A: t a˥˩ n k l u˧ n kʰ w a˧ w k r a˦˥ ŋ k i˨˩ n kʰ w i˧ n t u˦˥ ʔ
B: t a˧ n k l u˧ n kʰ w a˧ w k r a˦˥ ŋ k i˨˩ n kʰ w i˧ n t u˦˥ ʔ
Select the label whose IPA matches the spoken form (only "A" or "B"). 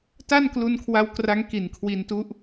A